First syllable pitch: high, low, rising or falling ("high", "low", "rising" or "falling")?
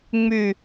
low